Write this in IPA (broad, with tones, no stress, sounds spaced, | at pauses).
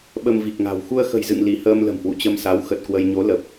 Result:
ɓ ə˧ m v i˨˩ k̚ ŋ a̤˨˩ w x u˧ ə̯ x ə̤˨˩ j z ɨ̰˧˨ ŋ l i˧˩ h əː˧ m l ə̤˨˩ m h w ṵ˧˨ t͡ɕ ə˧ m s a˨˦ w x ə˨˩ t̚ k w ə˧ j ɲ o˨˦ l ə˨˩ p̚